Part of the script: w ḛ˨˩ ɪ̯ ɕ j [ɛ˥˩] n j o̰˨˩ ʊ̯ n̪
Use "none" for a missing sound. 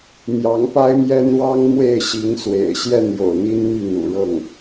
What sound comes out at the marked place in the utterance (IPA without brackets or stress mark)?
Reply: ɛ˥˩